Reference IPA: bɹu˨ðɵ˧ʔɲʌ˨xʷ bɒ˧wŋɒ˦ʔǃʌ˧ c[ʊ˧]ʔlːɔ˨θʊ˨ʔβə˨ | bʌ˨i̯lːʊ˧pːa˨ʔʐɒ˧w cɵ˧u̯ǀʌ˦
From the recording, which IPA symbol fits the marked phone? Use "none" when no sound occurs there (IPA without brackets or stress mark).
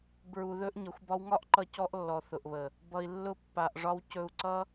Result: ɔ˧